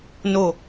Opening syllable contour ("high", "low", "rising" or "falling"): low